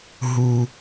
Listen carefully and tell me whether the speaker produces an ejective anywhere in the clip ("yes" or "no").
no